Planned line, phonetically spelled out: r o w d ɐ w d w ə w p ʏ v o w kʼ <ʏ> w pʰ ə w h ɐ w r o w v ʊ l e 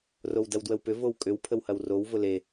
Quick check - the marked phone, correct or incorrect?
correct